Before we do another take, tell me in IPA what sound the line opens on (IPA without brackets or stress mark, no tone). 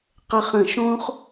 q